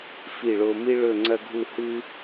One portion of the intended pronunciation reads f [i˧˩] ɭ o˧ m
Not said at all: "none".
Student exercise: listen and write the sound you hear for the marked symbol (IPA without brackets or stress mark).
i˧˩